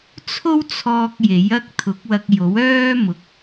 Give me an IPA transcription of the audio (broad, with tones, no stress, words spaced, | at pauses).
t͡sʰo˥wt͡sʰɔː˧k̚ je˨˥jɐ˥k̚ t̪ʰʊ˨˥k̚wɐ˧k̚jo˨˥w œː˥mʊ˨k̚